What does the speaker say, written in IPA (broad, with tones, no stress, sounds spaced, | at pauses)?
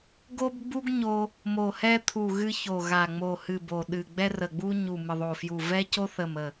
ɡ o˥ b ɡ͡b u˥ ɡ ɲ o˥ | m o˧˩ h ɛ˥ t̪ʰ u˧˩ ɣ ɨ˥ ç o˧˩ ɣ a˧˩ ŋ͡m o˧˩ h ɨ˧˩ b o˧˩ ɗ ɨ˧˩ ɡ͡b ɛ˥ r ə˧˩ ɡ͡b u˥ ɲ u˧˩ m ɨ˧˩ ðˤ o˧˩ f j u˧˩ v ɛ˥ c o˥ θ ə˧˩ m ə˧˩